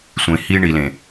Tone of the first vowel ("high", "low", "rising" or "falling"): low